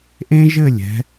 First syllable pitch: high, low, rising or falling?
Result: high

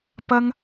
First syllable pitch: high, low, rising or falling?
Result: high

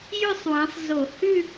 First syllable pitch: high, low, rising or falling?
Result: falling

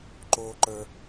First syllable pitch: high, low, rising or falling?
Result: high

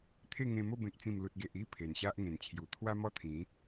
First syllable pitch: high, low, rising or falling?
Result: falling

